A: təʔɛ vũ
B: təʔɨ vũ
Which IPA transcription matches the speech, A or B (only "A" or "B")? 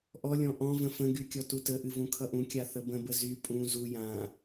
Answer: B